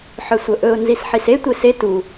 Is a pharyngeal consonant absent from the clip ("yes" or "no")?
no